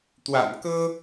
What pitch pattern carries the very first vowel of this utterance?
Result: low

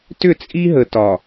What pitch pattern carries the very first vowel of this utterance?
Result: falling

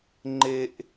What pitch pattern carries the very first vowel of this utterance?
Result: high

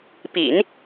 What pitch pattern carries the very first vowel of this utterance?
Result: low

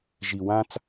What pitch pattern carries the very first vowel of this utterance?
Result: low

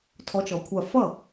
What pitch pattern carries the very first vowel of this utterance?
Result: rising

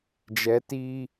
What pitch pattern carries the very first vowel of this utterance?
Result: rising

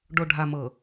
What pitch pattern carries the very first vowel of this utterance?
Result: low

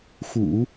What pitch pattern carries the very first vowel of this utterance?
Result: low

